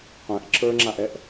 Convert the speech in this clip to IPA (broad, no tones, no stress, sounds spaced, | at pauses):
qʷ ɛ̃ ʔ ǁ ə˞ ŋ͡ǁ a ʔ ɛ ʔ